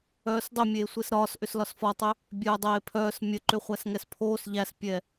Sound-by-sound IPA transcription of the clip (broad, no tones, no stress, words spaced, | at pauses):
œːsdˤʏ mʲeːsʷesɾɒːs ʔʏslɒsfɒtˤʏ | bʲœːdˤeːpʰœːs mʲə ǃʏχʷæsŋɛspʰoːs ʎæspʲɛ